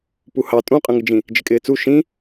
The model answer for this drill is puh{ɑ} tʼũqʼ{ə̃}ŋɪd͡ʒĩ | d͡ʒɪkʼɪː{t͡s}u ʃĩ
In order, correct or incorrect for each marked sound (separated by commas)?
correct, correct, correct